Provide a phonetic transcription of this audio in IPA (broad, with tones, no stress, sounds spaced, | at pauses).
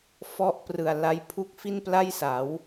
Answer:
f ɔ˦˥ ʔ p r ɯ˨˩ a̯ l a˦˥ j pʰ u˥˩ k̚ f i˥˩ n p l a˥˩ j s a˩˦ w